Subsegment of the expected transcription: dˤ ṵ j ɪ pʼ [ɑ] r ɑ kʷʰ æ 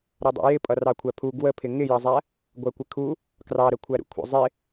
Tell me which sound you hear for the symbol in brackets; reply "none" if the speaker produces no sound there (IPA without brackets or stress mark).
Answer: ʌ